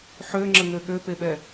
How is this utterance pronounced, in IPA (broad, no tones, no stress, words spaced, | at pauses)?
ħøŋ͡ǁəŋø ɠøpeɓɛ